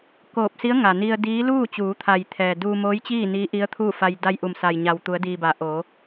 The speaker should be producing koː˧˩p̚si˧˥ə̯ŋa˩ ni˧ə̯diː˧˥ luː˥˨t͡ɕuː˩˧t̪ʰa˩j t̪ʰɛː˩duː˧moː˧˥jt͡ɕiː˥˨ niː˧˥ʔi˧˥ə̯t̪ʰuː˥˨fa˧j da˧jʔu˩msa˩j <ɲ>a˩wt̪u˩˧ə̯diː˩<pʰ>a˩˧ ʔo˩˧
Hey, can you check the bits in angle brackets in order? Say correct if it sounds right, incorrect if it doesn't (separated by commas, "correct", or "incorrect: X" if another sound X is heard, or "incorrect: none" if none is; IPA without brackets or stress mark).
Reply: correct, incorrect: b